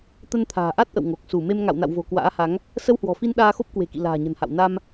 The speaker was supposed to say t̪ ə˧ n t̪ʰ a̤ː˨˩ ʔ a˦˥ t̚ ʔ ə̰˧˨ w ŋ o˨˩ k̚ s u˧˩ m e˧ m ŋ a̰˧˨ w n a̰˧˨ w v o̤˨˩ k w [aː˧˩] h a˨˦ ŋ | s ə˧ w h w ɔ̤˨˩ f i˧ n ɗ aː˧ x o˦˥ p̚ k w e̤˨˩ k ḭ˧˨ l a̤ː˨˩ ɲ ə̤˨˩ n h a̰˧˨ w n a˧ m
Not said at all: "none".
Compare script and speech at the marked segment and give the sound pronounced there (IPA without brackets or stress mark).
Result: a̰ː˧˥